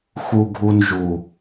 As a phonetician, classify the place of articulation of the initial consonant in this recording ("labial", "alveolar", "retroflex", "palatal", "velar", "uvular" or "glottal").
velar